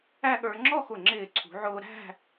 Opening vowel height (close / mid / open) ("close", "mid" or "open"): open